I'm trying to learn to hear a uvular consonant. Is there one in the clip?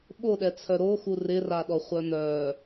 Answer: yes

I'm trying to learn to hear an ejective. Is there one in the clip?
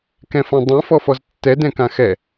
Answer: no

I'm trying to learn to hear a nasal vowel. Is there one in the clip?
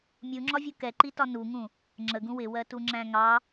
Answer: yes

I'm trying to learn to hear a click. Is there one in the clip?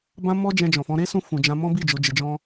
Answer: no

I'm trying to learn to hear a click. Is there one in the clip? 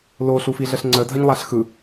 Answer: yes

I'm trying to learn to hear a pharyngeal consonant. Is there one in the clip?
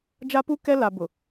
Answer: no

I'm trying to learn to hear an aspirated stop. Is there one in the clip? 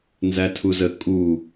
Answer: yes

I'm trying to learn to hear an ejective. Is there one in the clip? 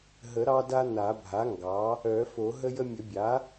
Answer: no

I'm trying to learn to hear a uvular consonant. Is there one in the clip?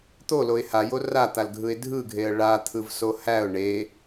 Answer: no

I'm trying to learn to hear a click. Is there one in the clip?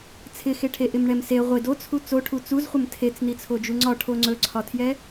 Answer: yes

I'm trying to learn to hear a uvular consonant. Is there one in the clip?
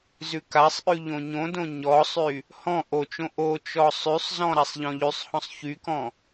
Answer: no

